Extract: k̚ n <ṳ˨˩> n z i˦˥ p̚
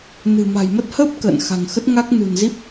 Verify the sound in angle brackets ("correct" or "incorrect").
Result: correct